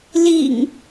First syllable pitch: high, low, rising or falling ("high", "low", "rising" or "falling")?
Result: low